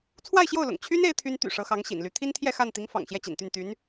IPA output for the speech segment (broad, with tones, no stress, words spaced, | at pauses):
t͡sʰwa˥˧ɪ̯ɕjo˥˩ʊ̯lʊ̰˨˩ŋ t͡ɕʰy˥n e˥ɪ̯t̪ʰy˥n t̪y̰˨˩ ʂɤ˧˥xɑ˧˥ŋɕḭ˨˩nly˧˥ t̪ʰi˥nt̪ʰjɛ˥˧ xa˥˩n t̪i˧˥ŋ fɑ̰˨˩ŋɕjɛ˥˩t͡ɕḭ˨˩nt̪y˥˩n t̪y˧˥n